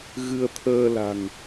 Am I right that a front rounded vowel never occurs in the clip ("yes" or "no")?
yes